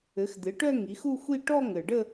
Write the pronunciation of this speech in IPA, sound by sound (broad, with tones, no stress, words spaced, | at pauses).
ɘ˩˥xd̪ɪ˩˥ʈœ˥˧ ŋi˩˥xu˥˧xʷi˥˧ ʈɔ˥˧ŋɘ˨˩ɖə˥˧